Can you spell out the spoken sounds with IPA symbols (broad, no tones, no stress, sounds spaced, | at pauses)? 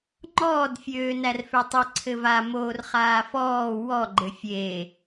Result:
ŋ͡ǃ ɔː d fʲ øː n æ r f ø tˤ ɘ ǀʰ ɘ v a m oː r χ aː f ɔː w ɔ ɡ͡ǃ ɘ fʲ e